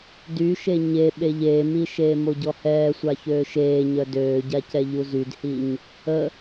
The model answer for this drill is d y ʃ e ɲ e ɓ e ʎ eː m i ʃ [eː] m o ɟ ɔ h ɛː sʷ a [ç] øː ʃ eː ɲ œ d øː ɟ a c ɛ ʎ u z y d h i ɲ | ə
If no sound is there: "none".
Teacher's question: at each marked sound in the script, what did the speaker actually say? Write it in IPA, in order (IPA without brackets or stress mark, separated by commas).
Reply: eː, ç